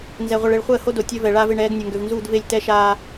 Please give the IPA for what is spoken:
n z ɛ˨ ʁʷ œ˨ ɭ e˨ ɭ χʷ əː˦˨ h o˦ d o˨ tʲ œ˦ v ɛ˨ ɭ aː˦ v e˦ ɳ ɛː˨˦ ɡ nʲ o˨ ŋ ɡ ø˨ v n z uː˦˨ d v e˦˨ lʲ t ɛ˦ ʃ aː˦

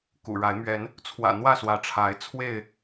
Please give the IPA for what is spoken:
k ṵ˨˩ ɻ a˨˦ ɪ̯ m ɥ ɛ˨˦ n | t͡sʰ w ä̰˨˩ n̪ w ä˥˨ s w ä˨˦ ʈ͡ʂʰ a˨˦ ɪ̯ t͡sʰ w e˥˨ ɪ̯

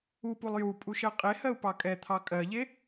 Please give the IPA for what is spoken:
u p u lˠ j u pʼ u ʃ ɜ qʼ e h ɜ u̯ p ɑ kʼ ɛ t̪ʰ ɑ kʼ ɜ ʎ e

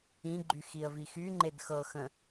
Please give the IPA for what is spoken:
ĩ ɡ͡ǃ y x i ə̯ v i x y ŋ͡ǃ e d x ɤ x ə̃

